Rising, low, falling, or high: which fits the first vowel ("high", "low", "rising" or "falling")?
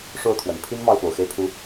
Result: falling